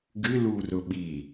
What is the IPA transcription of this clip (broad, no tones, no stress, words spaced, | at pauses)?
ɡɨlurʊ ɓi